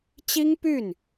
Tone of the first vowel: high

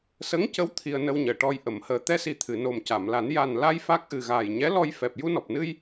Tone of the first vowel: rising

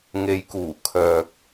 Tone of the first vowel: low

